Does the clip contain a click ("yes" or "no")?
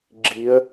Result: yes